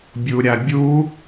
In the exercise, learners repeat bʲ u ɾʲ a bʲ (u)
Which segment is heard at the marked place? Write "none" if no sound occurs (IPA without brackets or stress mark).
u